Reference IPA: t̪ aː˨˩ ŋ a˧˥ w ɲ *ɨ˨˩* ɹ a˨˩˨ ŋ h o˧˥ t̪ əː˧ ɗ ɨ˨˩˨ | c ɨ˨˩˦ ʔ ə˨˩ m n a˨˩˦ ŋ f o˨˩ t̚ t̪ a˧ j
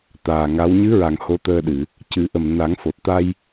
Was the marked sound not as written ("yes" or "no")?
yes